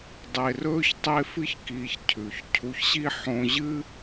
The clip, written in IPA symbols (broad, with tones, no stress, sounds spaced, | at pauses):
dˤ e˧ r ɵː˦ ç tˤ e˦ f ɨ˦ ç k iː˧ ç cʰ ʉ˨ ç cʰ u˧ ç ɕ i˦ ħ õ˧ ʑ ɨ˦